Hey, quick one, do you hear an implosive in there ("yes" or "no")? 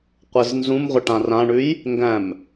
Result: no